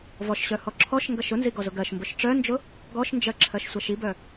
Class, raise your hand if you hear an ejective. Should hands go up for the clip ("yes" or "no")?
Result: no